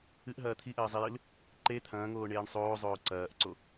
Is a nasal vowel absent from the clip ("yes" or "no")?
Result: no